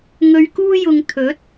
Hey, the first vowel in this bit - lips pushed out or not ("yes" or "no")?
yes